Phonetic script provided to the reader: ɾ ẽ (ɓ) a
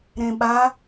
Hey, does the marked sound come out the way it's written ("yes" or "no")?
yes